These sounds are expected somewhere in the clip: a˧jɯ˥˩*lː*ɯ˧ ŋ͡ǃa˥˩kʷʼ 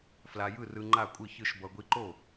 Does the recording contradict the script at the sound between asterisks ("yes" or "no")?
yes